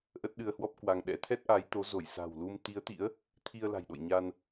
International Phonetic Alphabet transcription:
ʔ ə˦˥ t̚ ɗ ɨ˧ ə̯ h w ɔ˦˥ p̚ k w a˧ ŋ ɗ ɛ̰˧˥ t̪ʰ ɛ˦˥ t̚ ʔ a˨˦ j t̪ o˨˦ z o˧˩ j s a̤˨˩ w l u˧ m t̪ i˨˦ ə̯ t̪ ḭ˧˥ ə̯ | t̪ʰ i˧ ə̯ l a̤˨˩ j ɗ o̰˧˨ j ɲ a˧ n

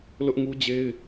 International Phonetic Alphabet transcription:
l ʊ˦ ʔ ŋ u˦ d͡ʑ e˦ ɪ̯

